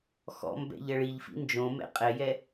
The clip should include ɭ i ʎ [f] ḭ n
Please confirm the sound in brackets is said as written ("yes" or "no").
yes